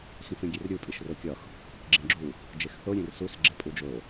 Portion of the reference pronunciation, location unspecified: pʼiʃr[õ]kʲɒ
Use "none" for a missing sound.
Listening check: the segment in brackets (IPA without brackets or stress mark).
o